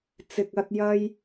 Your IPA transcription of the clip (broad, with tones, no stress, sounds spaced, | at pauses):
t͡s ɪ˨ k̚ ɐ˧ t̚ j ɐ˧ j